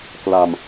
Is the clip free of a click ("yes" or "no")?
yes